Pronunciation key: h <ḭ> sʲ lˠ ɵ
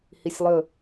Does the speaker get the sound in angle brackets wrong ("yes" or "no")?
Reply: yes